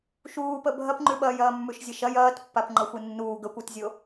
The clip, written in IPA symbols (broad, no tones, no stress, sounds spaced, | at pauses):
ʃ uː p ə bʱ ɐ p ŋ͡ǃ ʉ ɓ ɐː j ɐː mː ʉ ʃ zʲ ə ʃ ɐ j ɐː t pː a p ŋ͡ǃ ɐ xʷ ɨ nː uː ɡ ə kʷ ɨ t zʲ o